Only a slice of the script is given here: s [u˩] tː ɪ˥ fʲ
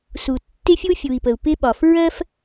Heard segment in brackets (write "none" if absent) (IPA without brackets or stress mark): u˩